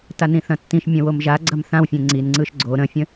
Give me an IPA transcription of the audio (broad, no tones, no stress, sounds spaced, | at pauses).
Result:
t a n ĩ θ ɐ̃ tː ĩ ʃ mʲ ɐ̃ w o m ʒ a ɡ͡ǀ ɐ m θ ã w fʲ ẽ ŋ͡ǀ i n ŋ͡ǀ ɯ ʃ ɡ͡ǀ o ɾ ə̃ fʲ ə̃